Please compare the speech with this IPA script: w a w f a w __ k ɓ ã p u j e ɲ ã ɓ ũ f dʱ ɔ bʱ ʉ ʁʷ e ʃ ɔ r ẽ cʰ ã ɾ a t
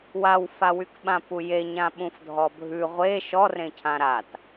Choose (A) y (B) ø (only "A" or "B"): A